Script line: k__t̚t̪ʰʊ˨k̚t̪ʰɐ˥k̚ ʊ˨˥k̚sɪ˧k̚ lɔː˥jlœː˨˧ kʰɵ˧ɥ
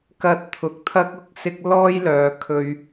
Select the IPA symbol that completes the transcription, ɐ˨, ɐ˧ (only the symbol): ɐ˧